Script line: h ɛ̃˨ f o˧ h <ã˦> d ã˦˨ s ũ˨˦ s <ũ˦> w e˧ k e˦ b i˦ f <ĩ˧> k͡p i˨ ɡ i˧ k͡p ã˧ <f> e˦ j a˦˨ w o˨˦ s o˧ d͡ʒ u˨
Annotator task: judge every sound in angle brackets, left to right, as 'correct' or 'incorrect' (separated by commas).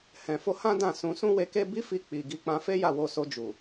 correct, correct, incorrect, correct